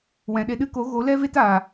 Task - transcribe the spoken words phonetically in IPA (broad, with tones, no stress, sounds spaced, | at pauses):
w ɛ̃˨ ɗ e˧ ɗ ɨ˦ k o˨˦ ɣ o˨˦ l ɛ˦ v e˦ t aː˨